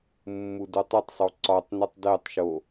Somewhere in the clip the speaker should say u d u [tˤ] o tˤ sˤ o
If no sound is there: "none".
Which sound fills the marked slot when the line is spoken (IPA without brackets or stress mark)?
tˤ